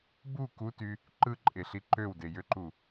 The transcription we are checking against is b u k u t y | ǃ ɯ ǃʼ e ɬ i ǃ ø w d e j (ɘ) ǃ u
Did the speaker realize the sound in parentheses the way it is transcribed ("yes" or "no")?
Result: no